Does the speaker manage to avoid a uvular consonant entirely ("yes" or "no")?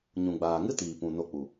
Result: yes